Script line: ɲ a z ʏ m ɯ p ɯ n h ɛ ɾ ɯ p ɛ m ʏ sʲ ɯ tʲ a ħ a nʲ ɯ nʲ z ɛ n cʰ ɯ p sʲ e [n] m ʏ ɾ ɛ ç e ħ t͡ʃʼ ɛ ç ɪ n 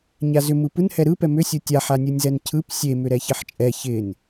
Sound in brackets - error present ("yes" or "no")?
yes